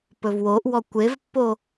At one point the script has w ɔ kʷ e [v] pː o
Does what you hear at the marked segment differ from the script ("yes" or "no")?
no